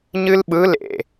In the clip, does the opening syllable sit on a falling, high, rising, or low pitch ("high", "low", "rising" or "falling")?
high